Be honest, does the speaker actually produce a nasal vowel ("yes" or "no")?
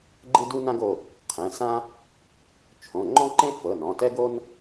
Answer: yes